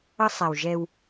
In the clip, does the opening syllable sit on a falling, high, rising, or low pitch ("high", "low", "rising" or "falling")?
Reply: high